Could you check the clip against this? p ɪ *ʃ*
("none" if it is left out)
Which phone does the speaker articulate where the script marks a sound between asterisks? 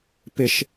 ʃ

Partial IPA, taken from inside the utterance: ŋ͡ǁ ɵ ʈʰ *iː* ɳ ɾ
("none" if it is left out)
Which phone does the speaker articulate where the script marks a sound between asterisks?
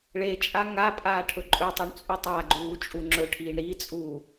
iː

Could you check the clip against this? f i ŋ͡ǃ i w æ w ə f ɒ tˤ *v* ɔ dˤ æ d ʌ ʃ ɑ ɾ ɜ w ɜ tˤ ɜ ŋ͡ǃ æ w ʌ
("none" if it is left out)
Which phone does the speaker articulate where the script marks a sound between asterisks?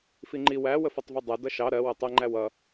v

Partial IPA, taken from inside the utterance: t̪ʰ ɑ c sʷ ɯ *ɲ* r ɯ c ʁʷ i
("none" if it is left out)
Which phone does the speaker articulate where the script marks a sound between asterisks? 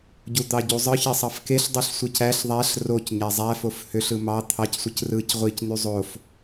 c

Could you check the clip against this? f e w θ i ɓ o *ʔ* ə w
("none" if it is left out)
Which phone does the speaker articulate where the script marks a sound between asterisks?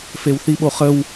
χ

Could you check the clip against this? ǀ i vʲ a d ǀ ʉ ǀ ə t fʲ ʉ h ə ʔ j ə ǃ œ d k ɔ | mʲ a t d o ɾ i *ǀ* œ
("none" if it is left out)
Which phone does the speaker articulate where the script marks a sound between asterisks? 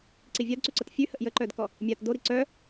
ǀ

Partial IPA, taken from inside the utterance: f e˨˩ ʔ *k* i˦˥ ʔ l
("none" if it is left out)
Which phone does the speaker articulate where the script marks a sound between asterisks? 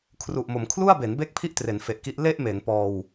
k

